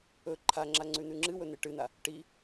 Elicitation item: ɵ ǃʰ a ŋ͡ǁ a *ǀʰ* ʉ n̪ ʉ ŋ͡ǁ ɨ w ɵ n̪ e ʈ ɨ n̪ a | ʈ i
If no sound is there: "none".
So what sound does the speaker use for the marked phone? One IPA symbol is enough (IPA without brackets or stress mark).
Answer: ŋ͡ǀ